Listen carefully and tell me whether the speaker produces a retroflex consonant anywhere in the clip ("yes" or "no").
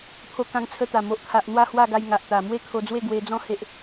no